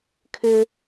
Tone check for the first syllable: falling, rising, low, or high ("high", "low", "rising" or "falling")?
high